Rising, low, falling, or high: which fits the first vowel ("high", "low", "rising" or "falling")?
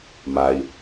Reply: low